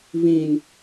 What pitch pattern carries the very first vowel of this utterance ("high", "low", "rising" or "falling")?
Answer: low